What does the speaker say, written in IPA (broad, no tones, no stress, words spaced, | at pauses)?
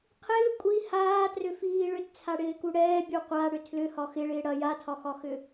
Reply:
qʰɪː kʷʼi haːtrʏfiː ɭʏtt͡sʰaɽɪːku ɽɛːbʲu qʷaɽʏ tʰlʏhɒ xɪɭɪː ɽɐ jatʰɒxɒxʏ